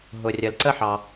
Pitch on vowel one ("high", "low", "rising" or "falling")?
low